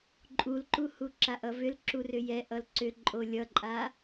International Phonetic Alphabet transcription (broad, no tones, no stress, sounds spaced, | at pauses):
ǃʼ u l ǃ u h u ǁ a ʔ ʌ v ʏ l ǁ u r ʏ j ɛ ʔ ʌ l ǀ ʏ ǃʼ o lʲ ʌ ǃʼ a